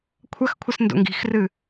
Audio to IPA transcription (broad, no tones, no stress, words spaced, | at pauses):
kʷʰɐxkʷʰɘs ndo̰ŋɡi̤xrɨ